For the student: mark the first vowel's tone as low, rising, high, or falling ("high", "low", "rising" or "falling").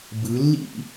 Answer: rising